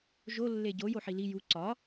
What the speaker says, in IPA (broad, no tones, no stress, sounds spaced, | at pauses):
ʒ o lː e ɟ o j o ħ i l i j u ǀ ɒ